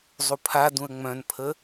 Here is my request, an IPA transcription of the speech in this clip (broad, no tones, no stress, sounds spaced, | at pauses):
zˤ u pʰ a d ũ ə̯ ŋ͡m œ̃ n pʰ ə